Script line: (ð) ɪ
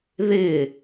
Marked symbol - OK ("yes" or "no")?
yes